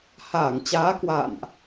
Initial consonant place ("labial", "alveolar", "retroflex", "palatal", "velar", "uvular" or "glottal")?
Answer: glottal